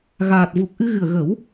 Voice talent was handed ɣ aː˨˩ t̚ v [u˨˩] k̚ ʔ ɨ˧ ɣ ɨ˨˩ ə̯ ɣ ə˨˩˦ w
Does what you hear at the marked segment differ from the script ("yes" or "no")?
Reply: no